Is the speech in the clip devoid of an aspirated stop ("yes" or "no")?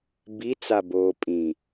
yes